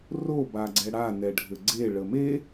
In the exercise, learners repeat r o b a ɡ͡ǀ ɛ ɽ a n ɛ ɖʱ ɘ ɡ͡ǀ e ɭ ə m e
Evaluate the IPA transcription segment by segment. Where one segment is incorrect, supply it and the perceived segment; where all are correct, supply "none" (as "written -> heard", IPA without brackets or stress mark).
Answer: none